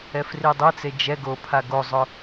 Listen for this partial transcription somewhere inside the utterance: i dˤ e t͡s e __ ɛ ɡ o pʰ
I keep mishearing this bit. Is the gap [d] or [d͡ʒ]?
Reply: d͡ʒ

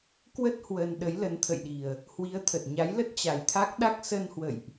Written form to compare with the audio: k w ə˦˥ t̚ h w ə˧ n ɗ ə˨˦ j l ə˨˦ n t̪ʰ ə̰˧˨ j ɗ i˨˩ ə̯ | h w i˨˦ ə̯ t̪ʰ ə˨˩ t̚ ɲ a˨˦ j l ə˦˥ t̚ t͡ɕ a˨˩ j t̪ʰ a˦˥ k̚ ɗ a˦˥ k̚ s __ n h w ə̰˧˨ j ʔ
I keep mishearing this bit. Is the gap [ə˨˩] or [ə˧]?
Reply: ə˧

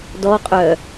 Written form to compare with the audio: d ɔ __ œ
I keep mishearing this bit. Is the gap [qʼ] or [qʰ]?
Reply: qʼ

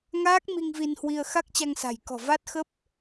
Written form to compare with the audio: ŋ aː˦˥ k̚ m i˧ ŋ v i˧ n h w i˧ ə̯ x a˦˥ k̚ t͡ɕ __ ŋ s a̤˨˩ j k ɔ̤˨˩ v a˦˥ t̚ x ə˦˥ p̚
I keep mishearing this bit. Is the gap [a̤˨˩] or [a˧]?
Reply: a˧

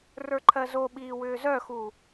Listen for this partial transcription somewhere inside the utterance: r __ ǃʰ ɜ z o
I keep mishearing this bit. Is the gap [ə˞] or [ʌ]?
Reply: ə˞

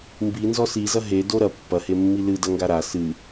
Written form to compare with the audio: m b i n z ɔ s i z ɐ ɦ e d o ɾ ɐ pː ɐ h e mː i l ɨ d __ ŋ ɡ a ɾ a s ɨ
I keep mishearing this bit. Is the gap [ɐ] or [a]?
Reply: ɐ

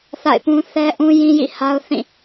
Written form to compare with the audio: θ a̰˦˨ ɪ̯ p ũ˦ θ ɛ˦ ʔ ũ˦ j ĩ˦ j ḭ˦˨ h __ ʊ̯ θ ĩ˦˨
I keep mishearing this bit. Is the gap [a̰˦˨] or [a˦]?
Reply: a˦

